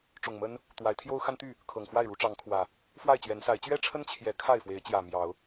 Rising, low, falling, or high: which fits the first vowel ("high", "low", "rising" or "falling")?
low